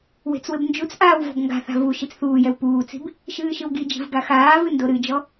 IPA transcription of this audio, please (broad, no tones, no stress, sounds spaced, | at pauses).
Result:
w e̤ t͡s w ɘ b n d͡ʒ u t͡s ʔ aː w v ɔ̤ b ŋ ɡ a̤ θ a̤ v u ʃ i t͡s θ uː j ɛ w p uː t͡s i̤ b | ʃ ɨː ʃ ɨ w ɡ i d͡ʒ i̤ v ɡ a x aː v ɨ n d o ɾ ɨ d͡ʒ ɔ